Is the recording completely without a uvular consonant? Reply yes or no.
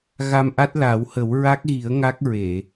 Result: yes